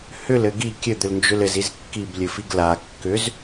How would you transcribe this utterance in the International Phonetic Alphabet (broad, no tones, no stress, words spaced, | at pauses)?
hʏlɘ ɡi kʲɘd̪ʏlnd͡ʒʏl ɘziz kːiblʲɘfiɡ la kːʏz